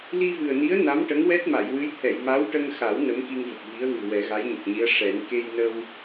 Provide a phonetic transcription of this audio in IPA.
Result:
l i˧ v ɨ˨˩ ə̯ n i˧˥ ə̯ n a˧˥ m ʈ ə˧˥ ŋ w ɛ˦˥ t̚ m a˨˩˨ j w ɨ˧˥ j t̪ʰ ɛ˨˩˨ j m a˧˥ w ʈ ə˧ ŋ x a˨˩˦ w n ə˧˥ m k i˧ ŋ v ə˨˩ k̚ v i˧˥ ə̯ ɣ ɨ˨˩ w ɛ˨˩˦ ɣ a˧˥ j ɲ ə˨˩ k̚ ɲ i˧˥ ə̯ ʂ ɛ˨˩˦ n k e˧ j n ə˧ w

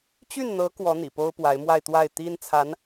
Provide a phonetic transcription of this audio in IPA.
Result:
t͡ɕ y˥˩ n n̪ ɤ˧˥ k w ɔ˧˥ n̪ ḭ˨˩ p o˥ ʊ̯ p w a˧˥ ɪ̯ m w a˥˧ ɪ̯ t̪ w a˥˩ ɪ̯ t̪ i˥ n t͡sʰ a˧˥ n

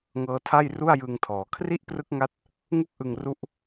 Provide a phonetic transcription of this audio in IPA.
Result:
ŋ ɤː˦˥ tʰ a˥˩ j r u˥˩ a̯ j ɯ˧ ŋ tʰ ɔː˩˦ kʰ r i˥˩ ʔ p r ɯ˦˥ k̚ ŋ a˦˥ t̚ | ŋ u˥˩ k̚ ʔ ɯ˧ ŋ r u˦˥ ʔ

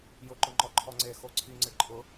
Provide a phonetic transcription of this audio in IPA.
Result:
j ʊ ǃ ʊ ŋ͡ǃ ɔ ǃʰ ɔ ŋ͡ǀ e x o ǀʰ i ŋ͡ǀ ɪ ǃʼ ʊ

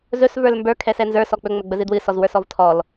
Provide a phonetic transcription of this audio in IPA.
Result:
z ɵ s v ə˞ l m b ə˞ kʰ ɛ s ɛ n z ə˞ s ɔ k͡p ɵ ŋ͡m ɵ ɡ͡b ə z ɨ d w ɨ s ɔ z w ə˞ s ɔ v tʰ ɔ l

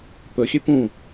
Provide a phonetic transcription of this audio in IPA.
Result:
p ɵ xʲ ø p ũ

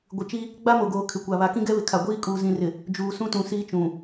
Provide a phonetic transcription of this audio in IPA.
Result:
ɡʷ ɪ˨ t͡ʃ i˦ | ɡ͡b a˦ m o˨ ɡ oː˨ kʰ ɪ˨ kʷ a˨ β a˨ k ĩ˦ ɡ ɛ˦ β ɪ˨ kʰ a˨ ɡʷ iː˦˨ kʼ uː˨ z ĩ˨ r ɪ˨ | d͡ʒ uː˨ s ũ˦ t ũ˨ s iː˦ t͡ʃ ũ˨

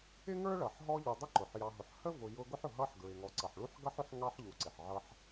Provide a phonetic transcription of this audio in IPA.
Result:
ɪ˥ ŋ ə˞˥ ɭ ʌ˩ ħ ɦ ɔ˦ ʎ u˨ dˤ ʊ˦ ǃ ʊ˩ ħ j ɑ˨ ɦ ʊ˨ ħ h ə˥ v ʊ˨ j ʊ˦ ɡ ʊ˥ ħ ʊ˨ ɦ ʌ˦ ħ ɡ ɹ ɪ˨ ŋ ɔ˨ ǀ ʌ˩ ħ ɭ u˥ ħ ɡ ʌ˥ ħ ʊ˥ ħ ŋ ɑ˥ ħ ʎ u˨ ǀ ɪ˩ ħ ʕ ʌ˦ ħ

